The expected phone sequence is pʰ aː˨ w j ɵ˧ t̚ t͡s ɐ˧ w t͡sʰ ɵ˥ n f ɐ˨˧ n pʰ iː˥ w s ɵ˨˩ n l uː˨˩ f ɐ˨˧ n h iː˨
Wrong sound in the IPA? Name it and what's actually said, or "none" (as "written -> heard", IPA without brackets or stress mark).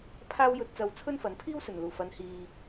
aː˨ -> aː˥